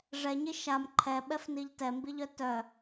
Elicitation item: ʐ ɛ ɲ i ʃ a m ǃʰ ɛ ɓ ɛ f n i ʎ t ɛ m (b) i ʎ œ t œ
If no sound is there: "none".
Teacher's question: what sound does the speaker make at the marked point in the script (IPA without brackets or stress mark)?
b